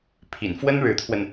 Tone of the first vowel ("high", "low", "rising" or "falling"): low